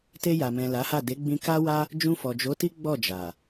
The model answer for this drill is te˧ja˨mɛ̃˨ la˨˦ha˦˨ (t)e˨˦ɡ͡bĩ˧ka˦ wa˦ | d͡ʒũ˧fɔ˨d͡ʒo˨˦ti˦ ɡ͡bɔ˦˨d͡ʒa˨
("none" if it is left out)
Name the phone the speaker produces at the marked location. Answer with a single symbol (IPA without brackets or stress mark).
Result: d